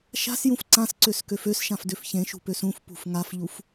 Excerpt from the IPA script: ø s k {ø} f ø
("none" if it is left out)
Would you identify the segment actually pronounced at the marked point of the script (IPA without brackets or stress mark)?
ø